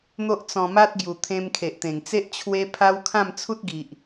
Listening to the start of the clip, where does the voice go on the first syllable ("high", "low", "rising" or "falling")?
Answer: high